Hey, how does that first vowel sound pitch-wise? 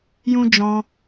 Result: high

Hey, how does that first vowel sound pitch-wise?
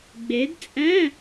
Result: rising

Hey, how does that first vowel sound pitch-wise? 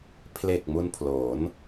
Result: low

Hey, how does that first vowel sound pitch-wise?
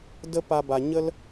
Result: high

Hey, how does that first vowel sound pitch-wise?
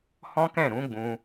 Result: high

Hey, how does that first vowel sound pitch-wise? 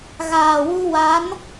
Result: low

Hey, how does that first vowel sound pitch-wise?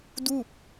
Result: falling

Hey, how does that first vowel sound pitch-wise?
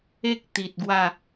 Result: high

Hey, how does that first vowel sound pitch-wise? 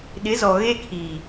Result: rising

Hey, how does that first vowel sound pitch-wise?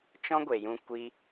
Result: high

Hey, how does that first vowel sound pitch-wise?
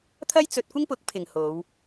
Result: high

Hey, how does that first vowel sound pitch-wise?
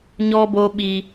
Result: high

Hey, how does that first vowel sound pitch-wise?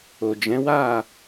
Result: low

